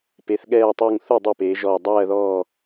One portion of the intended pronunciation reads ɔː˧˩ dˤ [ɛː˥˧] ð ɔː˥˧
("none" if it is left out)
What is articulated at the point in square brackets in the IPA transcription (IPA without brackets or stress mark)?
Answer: ɜː˥˧